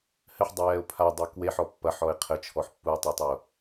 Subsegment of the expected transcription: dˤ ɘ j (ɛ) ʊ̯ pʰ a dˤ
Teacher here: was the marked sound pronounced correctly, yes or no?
yes